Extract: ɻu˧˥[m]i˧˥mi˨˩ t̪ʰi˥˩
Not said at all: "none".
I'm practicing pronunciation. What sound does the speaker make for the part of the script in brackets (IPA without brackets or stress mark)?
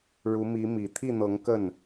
m